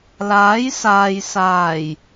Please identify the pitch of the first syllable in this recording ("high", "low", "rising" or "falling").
rising